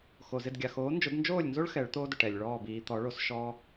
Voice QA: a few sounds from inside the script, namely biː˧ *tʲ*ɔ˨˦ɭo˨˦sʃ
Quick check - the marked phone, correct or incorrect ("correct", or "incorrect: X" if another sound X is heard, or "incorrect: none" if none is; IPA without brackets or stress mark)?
incorrect: t̪